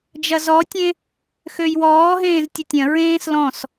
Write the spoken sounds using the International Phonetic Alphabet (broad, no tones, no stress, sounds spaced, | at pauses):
d͡ʒ ɐ z ɔ tʲ ẽ | x ø j w ɔː ɦ ẽː z tʲ ɐ tʲ ɐ̃ ɹ ẽː s l ɔ̃ s